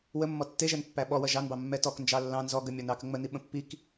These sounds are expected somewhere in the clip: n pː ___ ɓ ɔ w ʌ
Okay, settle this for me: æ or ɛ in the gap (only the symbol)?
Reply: æ